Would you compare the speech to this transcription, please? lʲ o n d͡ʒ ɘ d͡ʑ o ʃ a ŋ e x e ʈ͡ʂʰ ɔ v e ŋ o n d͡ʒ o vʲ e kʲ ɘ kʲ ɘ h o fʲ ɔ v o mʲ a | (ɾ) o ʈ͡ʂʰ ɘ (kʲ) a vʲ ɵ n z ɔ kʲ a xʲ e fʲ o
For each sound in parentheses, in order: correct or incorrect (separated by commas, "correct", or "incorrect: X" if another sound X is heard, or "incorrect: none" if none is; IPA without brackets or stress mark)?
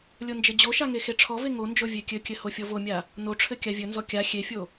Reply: incorrect: n, correct